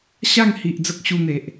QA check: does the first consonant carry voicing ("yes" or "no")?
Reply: no